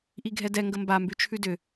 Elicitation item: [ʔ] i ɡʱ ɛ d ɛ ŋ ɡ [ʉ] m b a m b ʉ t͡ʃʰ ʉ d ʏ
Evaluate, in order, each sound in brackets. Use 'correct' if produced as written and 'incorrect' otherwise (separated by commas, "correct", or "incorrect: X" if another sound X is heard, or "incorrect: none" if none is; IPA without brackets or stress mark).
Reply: correct, incorrect: ə